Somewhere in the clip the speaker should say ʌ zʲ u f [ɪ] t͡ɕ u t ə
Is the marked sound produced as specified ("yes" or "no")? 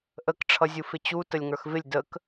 yes